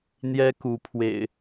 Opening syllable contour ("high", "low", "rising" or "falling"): high